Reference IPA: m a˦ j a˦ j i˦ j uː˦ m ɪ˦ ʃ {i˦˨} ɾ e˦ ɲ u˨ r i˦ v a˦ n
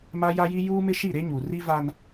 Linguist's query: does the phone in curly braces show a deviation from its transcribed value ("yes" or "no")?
no